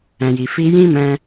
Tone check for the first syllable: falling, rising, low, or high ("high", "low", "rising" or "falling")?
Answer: low